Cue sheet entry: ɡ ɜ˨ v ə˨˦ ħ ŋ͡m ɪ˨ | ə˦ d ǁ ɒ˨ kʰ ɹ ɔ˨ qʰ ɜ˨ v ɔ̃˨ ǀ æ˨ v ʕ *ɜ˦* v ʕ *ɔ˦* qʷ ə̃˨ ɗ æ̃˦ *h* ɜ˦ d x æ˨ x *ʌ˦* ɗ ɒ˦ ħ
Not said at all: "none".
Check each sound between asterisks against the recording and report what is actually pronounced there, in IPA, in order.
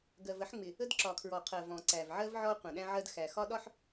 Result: ɜ˦, ɔ˦, ʕ, ɒ˦

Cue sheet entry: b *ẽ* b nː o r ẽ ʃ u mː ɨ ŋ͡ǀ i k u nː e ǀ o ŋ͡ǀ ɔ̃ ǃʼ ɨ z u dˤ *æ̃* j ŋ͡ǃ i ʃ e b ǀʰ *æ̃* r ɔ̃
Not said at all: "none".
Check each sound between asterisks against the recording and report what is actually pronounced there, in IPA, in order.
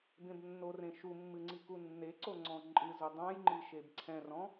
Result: ẽ, ã, ɛ̃

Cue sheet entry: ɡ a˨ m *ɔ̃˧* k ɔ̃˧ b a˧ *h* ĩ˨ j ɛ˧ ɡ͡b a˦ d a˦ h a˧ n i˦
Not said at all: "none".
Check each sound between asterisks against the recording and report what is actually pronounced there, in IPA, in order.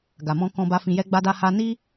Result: ɔ̃˧, f

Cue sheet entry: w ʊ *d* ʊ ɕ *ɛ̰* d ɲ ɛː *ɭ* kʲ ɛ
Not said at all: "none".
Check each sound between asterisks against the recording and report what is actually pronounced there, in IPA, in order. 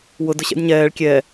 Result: d, ɛ̰, ɭ

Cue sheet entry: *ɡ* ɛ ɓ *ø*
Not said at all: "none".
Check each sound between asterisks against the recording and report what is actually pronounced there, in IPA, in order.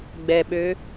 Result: ɡ͡b, ø

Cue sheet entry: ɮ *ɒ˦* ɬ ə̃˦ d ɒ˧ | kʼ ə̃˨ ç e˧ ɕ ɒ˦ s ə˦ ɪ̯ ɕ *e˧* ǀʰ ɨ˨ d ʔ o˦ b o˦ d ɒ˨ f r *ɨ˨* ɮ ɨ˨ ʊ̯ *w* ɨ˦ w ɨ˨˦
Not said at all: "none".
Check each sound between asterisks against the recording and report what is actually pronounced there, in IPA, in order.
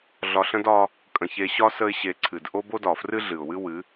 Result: ɒ˧, e˧, ɨ˦, w

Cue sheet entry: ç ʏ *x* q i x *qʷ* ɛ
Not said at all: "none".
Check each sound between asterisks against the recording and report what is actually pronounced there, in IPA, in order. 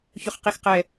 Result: χ, q

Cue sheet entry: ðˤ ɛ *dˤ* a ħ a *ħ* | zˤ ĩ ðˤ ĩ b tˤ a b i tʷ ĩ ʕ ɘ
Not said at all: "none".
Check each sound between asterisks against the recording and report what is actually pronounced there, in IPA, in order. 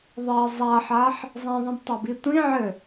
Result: zˤ, ħ

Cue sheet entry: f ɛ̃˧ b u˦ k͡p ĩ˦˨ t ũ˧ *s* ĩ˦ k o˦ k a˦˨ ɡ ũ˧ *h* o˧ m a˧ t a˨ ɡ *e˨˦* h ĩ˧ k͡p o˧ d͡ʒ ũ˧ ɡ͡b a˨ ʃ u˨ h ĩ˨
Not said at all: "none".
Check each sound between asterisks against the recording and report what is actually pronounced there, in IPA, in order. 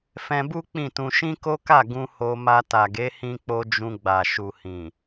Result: ʃ, h, e˨˦

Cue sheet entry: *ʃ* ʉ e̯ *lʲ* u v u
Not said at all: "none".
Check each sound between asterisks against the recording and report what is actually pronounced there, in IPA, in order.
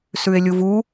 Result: s, lʲ

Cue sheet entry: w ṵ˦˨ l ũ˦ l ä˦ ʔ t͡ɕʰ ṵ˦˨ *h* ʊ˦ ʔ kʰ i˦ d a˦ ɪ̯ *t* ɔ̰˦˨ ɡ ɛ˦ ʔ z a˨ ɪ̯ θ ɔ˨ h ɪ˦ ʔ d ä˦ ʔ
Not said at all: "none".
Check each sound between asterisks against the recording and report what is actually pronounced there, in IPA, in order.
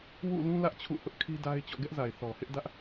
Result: h, t͡ɕ

